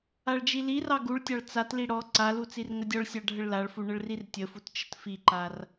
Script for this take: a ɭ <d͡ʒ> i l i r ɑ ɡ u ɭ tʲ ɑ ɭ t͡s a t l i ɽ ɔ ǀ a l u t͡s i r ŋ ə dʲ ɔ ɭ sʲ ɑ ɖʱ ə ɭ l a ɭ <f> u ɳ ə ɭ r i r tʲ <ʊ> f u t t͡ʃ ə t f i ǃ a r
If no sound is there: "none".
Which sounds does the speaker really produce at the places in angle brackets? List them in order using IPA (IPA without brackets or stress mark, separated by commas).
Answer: d͡ʒ, f, ə